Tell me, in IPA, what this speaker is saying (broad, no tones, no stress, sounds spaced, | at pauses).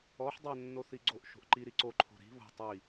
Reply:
ɔ ħ dˤ ø nː o θ i ɡ͡ǀ o ʔ ʃ o̤ ʔ ǃ i ɾ i ǀ o ǃʰ o̤ ɾ i̤ β o̤ tˤ i